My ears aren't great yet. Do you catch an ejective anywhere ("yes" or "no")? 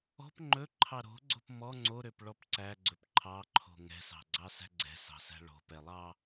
no